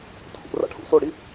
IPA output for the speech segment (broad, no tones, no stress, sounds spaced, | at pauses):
tʰ ṵ r a̰ ʈʰ ṵ s o ɽ i